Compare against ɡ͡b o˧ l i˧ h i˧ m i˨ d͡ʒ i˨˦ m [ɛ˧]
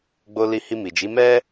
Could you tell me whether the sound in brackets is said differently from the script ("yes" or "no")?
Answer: yes